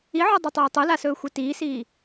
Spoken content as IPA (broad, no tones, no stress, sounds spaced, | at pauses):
i ʕ ɔ dˤ e tˤ ɵː tˤ u l a s ɵː xʷ e t iː s iː